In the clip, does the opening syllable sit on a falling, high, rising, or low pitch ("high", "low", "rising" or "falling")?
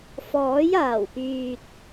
rising